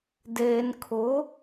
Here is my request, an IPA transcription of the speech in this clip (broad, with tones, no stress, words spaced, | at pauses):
deː˨nkʰʊ˨˦